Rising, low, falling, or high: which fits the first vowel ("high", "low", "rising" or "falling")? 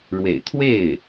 low